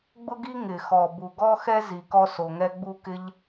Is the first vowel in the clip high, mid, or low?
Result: high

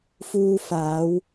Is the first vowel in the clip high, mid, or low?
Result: high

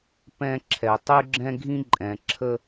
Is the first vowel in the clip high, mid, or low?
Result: mid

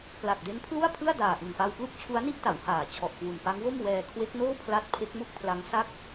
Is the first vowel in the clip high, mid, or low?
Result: low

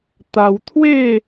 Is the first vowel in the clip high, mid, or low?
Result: low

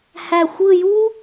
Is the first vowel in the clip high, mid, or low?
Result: low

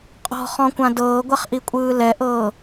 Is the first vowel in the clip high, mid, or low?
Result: mid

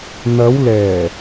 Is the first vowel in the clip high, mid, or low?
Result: low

